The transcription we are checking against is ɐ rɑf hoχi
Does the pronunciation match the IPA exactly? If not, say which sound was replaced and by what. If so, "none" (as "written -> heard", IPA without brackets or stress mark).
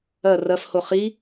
ɑ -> ɐ